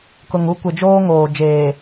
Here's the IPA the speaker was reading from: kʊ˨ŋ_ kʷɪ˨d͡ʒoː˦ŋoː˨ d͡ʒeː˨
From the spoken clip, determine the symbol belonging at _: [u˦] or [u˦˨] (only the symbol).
u˦